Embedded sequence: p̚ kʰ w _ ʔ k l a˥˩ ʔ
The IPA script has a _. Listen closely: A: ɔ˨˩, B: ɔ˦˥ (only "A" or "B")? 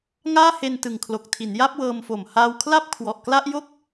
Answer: A